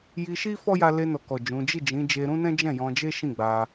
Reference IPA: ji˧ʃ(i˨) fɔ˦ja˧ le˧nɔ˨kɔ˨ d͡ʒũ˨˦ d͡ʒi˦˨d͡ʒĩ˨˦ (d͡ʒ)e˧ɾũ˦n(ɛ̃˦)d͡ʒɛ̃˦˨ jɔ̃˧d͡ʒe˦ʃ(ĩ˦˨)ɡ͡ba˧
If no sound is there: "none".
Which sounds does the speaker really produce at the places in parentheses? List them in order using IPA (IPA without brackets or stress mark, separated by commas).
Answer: i˦, d͡ʒ, ɛ̃˦, ĩ˦˨